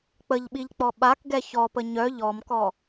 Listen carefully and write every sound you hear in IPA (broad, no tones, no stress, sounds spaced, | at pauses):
k͡p ə ʎ ɓ i ʎ k͡p ɔ ɓ a k ɡ ɛ ç ɔ p ə ɲ œ ʎ ɔ m k ɔ